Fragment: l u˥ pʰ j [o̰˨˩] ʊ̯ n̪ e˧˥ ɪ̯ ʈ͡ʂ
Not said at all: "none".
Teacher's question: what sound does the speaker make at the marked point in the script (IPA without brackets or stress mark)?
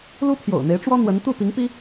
o̰˨˩